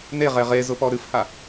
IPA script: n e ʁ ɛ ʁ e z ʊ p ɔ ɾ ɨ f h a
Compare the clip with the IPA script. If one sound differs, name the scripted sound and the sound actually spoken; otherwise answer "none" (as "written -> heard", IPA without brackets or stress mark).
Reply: none